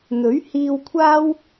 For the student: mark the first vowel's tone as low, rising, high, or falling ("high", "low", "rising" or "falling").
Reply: rising